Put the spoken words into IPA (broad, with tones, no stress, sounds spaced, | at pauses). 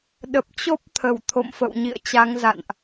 ɗ ə˨˩ p̚ t͡ɕ o˦˥ p̚ t̪ʰ ə˧˩ w t̪ʰ o̰˧˨ m f ə̰˧˨ w ɲ ḭ˧˨ ə̯ t͡ɕ a˨˦ ŋ z a̰˧˨ n ʔ